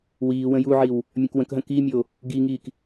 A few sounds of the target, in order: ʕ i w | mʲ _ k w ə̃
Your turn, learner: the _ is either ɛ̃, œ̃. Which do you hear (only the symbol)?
œ̃